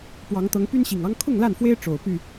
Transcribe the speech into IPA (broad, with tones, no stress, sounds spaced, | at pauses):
p w ɑ˨˦ ŋ t̪ ɤ˨˦ ŋ p y˦ n ɕ i˨˩ ŋ ɑ˦ ŋ kʰ ʊ˥˨ ŋ l a˥˨ n f w e˦ ɪ̯ ʈ͡ʂ o˨˩ ʊ̯ p y˥˨